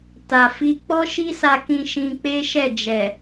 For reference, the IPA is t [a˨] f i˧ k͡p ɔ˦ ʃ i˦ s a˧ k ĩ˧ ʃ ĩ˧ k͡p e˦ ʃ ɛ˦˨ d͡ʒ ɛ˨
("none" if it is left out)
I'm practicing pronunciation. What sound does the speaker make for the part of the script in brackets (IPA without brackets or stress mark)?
a˨